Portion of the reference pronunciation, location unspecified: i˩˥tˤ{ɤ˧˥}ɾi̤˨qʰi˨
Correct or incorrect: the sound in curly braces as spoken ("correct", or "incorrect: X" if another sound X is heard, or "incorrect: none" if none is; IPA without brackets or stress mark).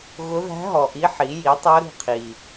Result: correct